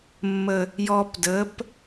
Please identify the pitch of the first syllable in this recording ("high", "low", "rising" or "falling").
low